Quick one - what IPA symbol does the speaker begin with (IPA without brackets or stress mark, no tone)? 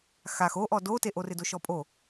x